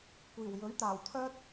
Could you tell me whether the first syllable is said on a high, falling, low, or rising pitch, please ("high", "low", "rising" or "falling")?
low